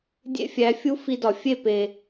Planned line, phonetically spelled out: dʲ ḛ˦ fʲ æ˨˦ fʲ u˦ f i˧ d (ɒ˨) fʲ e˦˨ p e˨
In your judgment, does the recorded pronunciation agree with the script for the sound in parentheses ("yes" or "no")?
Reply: yes